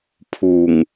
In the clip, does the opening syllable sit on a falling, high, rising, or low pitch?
low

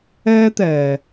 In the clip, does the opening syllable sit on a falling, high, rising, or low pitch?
high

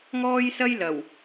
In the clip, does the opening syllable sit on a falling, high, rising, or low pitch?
high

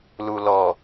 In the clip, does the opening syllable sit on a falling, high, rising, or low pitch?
low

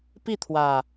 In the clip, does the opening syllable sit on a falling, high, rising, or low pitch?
falling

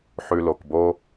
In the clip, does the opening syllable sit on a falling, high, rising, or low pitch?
low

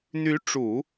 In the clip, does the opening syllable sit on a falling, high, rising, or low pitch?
rising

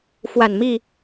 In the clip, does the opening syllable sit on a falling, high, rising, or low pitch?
low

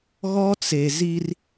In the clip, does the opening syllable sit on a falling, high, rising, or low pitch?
high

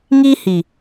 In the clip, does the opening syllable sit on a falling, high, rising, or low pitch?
high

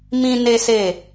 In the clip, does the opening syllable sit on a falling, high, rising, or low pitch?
high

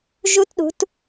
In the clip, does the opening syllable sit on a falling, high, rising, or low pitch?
high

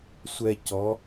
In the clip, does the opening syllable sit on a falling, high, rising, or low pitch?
low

